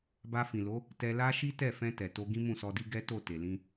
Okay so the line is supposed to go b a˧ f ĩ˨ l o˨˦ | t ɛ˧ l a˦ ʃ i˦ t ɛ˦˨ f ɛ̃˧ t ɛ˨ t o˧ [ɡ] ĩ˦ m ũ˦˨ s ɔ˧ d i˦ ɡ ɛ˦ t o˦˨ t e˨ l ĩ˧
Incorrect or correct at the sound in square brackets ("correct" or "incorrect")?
correct